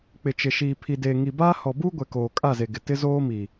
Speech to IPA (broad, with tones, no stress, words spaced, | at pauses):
k͡pɪ˨t͡ʃɪ˨ʃiː˨ pʰi˨deː˨ŋi˨baː˦ hɔ˨buː˦ɡʷɛ˨ koː˨kʼa˦˨ze˨ ɡɪ˨ tɪ˦zoː˦miː˨